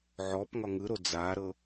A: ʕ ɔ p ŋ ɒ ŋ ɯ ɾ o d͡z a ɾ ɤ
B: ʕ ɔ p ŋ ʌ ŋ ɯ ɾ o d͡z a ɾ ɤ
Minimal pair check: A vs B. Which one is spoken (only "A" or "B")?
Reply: A